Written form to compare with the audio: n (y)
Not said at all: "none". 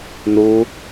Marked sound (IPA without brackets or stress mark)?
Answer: u